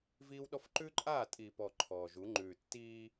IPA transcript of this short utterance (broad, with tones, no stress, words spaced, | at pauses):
viː˦wɗɔ˦f ǃʉ˦ǃʼaː˦˨tʼi˨pɔ˨ ǃʰɔː˨ʒu˨˦ ŋ͡ǃʉː˨tːiː˦